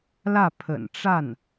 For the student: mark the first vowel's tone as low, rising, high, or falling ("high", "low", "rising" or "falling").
falling